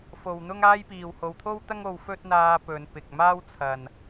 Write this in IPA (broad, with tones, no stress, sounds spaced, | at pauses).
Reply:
f o˨ w n̪ ʊ˥ ŋ aː˥ j p iː˨ w h o˨ w t̪ʰ o˥ w t̪ ɐ˥ ŋ o˧ w f ɵ˥ t̚ n̪ aː˧ p ɵ˨˧ n p ɪ˨ k̚ m aː˥ w t͡sʰ ɐ˨ n